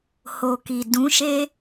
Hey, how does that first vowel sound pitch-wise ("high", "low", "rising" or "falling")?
low